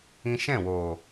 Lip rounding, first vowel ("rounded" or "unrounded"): unrounded